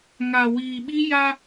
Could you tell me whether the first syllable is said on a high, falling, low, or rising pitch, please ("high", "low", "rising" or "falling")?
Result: low